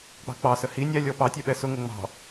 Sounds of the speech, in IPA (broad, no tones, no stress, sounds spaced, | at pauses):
k͡p ɑ̤ k͡p ɑ s ə h i nʲ æ lʲ ɔ p ɑ tʲ ɛ ɓ ɛ s ʊ ŋ ʊ ŋ͡m ɑ̤